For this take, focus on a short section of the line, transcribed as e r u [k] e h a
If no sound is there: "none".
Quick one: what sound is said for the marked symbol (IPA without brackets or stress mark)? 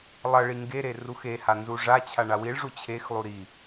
x